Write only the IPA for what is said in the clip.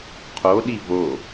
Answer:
qʰ o ɗ i v o

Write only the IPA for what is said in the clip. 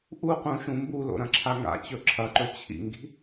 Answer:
ʔ u q ũ ʃ ũ m b u l o̰ ɾ ɐ̃ ǁʰ a ŋ a̰ t͡ɕ ɵ ǁʰ ɐ ǃ ɵ t͡ɕʰ ḭ ŋ ɡ i̤

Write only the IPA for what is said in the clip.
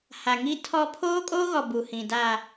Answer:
h a˨ ŋ i˦ tʰ ɔ˦ pʰ oː˦ kʼ oː˦ ɣ ɔ˨ b u˨ h ĩ˨ d a˨

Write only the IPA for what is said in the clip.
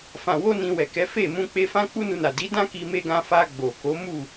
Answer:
f ã˨ w o˧ n ĩ˧ w ɛ˨ k ɛ˨˦ f e˦˨ m ũ˧ k͡p e˧ f ã˦ k͡p u˦ n u˧ n a˨ d i˨˦ d ã˦ k i˧ m e˧ ɡ ã˧ f a˧ ɡ͡b o˨ k o˨˦ m u˦˨

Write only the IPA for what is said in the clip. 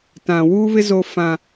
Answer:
t ã˨ w uː˦ β ɪ˦ z o˦ f ã˦

